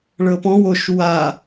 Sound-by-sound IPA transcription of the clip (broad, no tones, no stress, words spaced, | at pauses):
ɭɤpɔ̃w oʃ wa